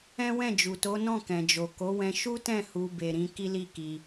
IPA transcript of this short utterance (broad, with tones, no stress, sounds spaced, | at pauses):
ɛ̃˦ w ɛ̃˦˨ d͡ʒ u˨ t o˨˦ n ɔ̃˦˨ k ɛ̃˨ d͡ʒ o˨ k o˨˦ w ɛ̃˧ ʃ u˦ t ɛ̃˦˨ h u˧ b e˨ ɾ ĩ˨˦ k i˦ l i˦˨ k i˧